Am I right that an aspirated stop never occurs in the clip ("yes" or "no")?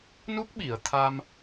no